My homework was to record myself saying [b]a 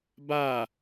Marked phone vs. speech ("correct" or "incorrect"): correct